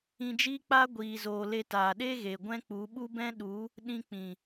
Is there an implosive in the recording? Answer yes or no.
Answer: yes